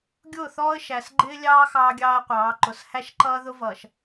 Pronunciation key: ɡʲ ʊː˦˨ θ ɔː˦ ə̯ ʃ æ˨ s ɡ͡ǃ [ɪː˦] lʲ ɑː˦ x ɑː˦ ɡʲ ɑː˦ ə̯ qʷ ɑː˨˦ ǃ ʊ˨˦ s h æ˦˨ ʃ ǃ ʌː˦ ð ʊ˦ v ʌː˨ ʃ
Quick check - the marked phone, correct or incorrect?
correct